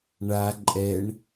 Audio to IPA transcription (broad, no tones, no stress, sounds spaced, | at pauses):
ɳ a ǃʼ ɛ ɳ